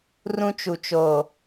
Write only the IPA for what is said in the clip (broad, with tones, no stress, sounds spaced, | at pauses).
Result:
r ũ˦ t͡ʃ u˨ t͡ʃ oː˨